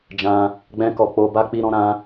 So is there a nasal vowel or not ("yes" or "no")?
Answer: yes